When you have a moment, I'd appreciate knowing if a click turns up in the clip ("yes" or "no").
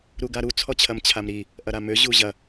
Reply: no